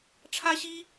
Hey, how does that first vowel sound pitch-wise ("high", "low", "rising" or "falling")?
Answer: high